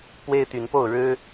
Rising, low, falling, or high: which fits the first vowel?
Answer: high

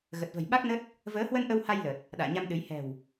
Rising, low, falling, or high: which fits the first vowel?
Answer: low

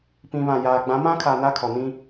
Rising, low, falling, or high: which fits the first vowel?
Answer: low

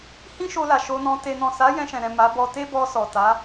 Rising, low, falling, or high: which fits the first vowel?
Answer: high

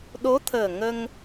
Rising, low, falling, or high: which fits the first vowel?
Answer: rising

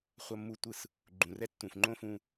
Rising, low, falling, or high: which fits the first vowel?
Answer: high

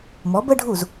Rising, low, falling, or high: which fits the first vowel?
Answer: rising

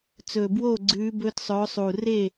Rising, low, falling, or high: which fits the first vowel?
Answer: low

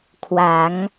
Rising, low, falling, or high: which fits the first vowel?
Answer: rising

